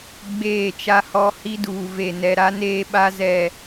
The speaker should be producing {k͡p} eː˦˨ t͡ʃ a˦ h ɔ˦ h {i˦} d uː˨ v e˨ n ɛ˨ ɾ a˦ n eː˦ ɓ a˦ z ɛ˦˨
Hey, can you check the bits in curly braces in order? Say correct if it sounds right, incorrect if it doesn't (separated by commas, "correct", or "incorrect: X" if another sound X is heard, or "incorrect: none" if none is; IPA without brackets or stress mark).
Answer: incorrect: ɡ͡b, correct